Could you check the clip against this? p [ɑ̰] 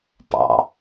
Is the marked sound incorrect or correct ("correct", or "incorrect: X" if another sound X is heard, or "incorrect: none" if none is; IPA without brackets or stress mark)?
correct